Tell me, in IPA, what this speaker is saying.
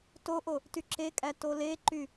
toʔo | tyǁekʼæ toleǃy

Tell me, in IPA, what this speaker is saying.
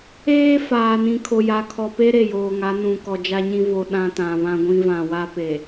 eː˦faː˨ nĩ˨kʰo˨ja˨ kʰɔ˨pe˦ ɾe˦˨joː˨ŋa˨˦ nũ˨kɔ˨d͡ʒa˦ɲĩ˦ vo˨ ɗã˦tã˨ βã˦ɡʷĩ˦vã˨ wa˦pe˨

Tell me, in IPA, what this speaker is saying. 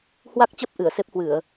hwa˦˥k̚t͡ɕə˦˥p̚ ʔɨ˧˩ə̯se˦˥p̚hwɨ˧˩˨ə̯

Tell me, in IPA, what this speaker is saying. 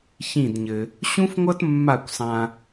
çĩ˦˨dɲɘ˧ | ɕũ˦fŋʷʌ˦t mːa˦˨kʷsˤã˧

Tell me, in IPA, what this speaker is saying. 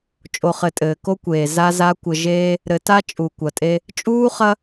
t͡ʃʼo˨χɘ˨ tʼɘː˨ko˦kʷeː˨ za˦za˦ kʷɘ˨ʒeː˦ | ɾɘ˨ta˦ t͡ʃʼu˨kʷɐ˨tʼe˦ | t͡ʃʼuː˦χɐ˦

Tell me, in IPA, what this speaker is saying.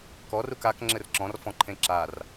kɔr ukak ŋ͡ǁɘrǁɔ̃r fɔ̃ǃʰẽǁar

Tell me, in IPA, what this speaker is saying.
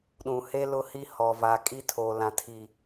ɗũ˨he˦ lʊ˦hi˦ hɔ˨va˨ kʼi˦tʰo˨lã˨ tʰi˨

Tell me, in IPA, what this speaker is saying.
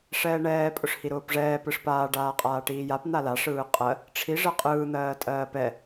ʂɛːɳɛː pʼʊʂhiɾʊːpʐɛː pɯʂpaː ɖaːqʼaːʈiːjap n̪ala ʂɯːqʼɜ | ʈ͡ʂʰi ʐɜqʼɯː n̪ɜːtʼɜːpɛ

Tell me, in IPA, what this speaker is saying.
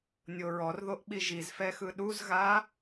nʲoɹɔrðoʔɓi ʒizfɛxɯ ɗuzɣa

